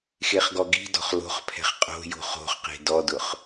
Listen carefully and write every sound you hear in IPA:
xeχɡɔɡi̤dɔ̤χ lo̤χpʰɛ̤χ qʼo̤ jo̤χo̤χqe̤ dɔdʊχ

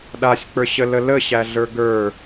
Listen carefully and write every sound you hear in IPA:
ɗasʲk͡pə˞ɕələ ləɕæɮə˞ ɡə˞

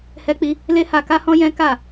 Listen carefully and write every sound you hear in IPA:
hɛ˦k͡pi˦ | le˦ha˧ka˦hɔ̃˦ jɛ̃˦ka˦˨

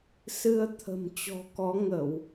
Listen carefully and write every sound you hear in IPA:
sɨ˧ə̯ t̪ʰə̤˨˩mt͡ɕɔ̤˨˩kɔ˨˦ ŋə˧˩˨w

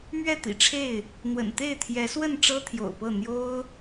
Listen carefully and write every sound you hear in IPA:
mɥɛ˥˨t̪ḭ˨˩ʈ͡ʂʰe˥˨ɪ̯ | n̪wə̰˨˩nt̪e˥˨ɪ̯t̪ʰjɛ˨˦swə˥˨n ʈ͡ʂɤ˦t̪ʰjo̰˨˩ʊ̯pɤ˥˨ n̪jo˦ʊ̯

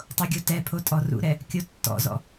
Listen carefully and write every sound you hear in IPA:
tˤoɡʲotɛpʰo tʼɔrṵɾɛ | kʲotːɔ̰zɔ̰

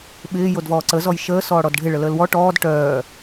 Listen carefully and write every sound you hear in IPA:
ɓɪː jodvɔːǀə zɔjʃəː sɔːɽɔdɖʱɪ ɭələːlwɔ ʈɔːd ʈœː

